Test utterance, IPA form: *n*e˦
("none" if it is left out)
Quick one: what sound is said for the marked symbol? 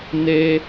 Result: n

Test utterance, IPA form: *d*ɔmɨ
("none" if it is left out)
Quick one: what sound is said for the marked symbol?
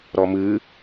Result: ɾ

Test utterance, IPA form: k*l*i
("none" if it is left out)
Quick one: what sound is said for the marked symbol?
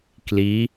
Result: l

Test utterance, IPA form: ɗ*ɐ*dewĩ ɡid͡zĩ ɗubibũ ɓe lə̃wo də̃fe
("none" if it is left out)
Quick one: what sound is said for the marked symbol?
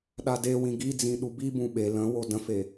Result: a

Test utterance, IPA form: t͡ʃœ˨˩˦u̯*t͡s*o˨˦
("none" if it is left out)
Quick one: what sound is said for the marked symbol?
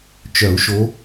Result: ʃ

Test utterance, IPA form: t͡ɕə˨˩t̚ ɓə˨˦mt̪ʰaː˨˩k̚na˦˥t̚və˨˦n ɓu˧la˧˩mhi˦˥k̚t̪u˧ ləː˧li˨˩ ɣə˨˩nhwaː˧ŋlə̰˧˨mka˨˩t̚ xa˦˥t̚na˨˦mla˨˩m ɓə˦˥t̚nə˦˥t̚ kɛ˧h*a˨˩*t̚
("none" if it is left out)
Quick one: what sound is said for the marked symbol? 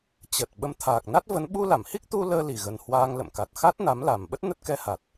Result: a˨˩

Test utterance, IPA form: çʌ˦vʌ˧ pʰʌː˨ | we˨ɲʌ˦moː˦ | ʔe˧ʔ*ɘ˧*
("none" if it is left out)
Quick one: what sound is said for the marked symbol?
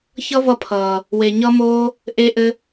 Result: ɘ˧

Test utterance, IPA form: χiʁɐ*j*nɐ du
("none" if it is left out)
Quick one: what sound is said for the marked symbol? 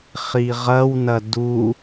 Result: w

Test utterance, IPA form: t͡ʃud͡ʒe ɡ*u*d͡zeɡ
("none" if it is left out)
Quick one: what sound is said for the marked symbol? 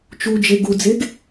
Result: u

